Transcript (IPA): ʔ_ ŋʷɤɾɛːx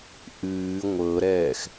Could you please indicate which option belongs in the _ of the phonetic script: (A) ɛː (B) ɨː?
B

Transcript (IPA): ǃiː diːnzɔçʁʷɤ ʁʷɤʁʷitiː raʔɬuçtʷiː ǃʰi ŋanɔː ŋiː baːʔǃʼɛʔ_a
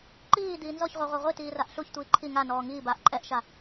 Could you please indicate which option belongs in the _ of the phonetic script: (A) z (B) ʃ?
B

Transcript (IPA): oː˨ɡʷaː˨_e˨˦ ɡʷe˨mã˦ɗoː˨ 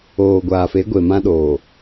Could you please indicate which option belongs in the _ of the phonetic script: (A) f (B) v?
A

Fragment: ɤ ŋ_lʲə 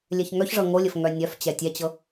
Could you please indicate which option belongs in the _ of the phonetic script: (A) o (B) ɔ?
A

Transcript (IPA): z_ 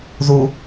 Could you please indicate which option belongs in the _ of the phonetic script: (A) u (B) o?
A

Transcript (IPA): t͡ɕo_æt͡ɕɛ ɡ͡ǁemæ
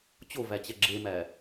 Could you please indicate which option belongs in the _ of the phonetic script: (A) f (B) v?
B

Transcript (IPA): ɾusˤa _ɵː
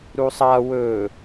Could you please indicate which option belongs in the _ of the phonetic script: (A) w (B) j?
A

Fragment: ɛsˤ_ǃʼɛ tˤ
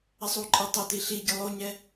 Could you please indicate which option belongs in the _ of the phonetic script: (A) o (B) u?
B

